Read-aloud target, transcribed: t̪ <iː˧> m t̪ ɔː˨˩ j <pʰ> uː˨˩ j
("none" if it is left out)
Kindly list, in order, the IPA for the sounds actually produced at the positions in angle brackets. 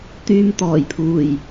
yː˧, pʰ

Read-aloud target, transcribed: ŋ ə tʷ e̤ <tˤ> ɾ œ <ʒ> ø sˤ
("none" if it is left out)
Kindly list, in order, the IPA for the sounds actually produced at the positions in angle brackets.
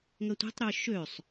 tˤ, ʃ

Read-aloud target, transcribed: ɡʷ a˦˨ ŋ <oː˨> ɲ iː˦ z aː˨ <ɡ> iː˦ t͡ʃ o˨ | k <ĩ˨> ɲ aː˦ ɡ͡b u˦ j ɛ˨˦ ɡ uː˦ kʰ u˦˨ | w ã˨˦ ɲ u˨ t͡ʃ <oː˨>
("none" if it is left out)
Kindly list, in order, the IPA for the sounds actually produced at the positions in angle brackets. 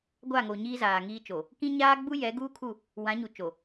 o˨, ŋ, ĩ˦, o˨

